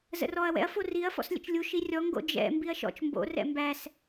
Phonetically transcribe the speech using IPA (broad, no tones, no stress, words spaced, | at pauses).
zə̰rɔɐ̯ wɛ̰ɐ̯ foriɐ̯ fɔ̰slʲə̰t͡ʃlʲu ʃirʲɔ ŋɡo̰d͡ʒɛ̰ mbiɐ̯ʃɔ̰t͡ʃ mbo̰ rɛ̰mbæs